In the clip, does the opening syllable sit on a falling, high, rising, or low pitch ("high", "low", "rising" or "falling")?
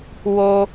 high